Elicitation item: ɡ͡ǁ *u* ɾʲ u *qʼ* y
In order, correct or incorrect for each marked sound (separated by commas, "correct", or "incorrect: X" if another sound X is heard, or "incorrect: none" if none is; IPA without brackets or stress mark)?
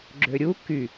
incorrect: ø, incorrect: k